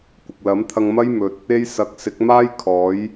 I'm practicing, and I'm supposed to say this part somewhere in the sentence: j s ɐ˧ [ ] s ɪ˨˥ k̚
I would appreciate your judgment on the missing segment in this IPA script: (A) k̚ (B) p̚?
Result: A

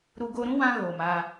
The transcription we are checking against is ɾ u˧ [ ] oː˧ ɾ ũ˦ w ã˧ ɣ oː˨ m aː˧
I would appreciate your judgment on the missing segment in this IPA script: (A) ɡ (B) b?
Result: A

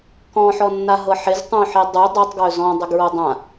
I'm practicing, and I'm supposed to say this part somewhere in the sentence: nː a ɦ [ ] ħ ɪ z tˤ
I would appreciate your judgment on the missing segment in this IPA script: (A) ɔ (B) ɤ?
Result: B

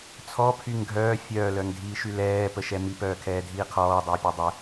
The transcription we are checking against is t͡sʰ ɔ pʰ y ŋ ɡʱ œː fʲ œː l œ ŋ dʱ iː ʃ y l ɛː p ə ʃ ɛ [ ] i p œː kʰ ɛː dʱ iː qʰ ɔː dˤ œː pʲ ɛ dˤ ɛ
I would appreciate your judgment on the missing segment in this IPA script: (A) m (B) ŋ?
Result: A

